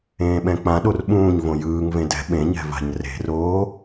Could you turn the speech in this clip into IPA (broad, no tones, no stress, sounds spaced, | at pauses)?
ẽː ɓ ɛ̃ k͡p ã ɗ o r ɓ ũː ɲ v õ j ɯː ŋ v ẽ d ɛ̤ ɓ ẽ ɲ ɛ̤ v a̤ ɲ r e̤ r oː